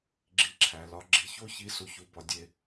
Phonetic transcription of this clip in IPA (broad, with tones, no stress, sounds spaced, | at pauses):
ɡ͡ǁ i˨ ǁʰ æ˩ l ɒ˨ ɡ͡ǁ i˨ ç o˦ ç i˨ s u˨ ç u˨ b ɒ˨ dʲ e˨